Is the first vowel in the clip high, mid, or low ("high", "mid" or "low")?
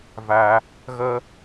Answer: low